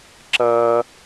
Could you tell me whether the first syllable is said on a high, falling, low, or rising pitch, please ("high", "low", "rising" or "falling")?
high